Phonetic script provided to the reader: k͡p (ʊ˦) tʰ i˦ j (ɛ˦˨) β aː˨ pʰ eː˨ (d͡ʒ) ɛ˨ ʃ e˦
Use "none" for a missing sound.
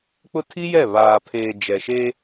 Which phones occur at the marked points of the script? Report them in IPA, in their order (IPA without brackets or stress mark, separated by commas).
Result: ʊ˦, ɛ˦˨, d͡ʒ